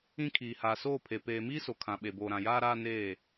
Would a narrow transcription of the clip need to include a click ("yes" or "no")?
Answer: no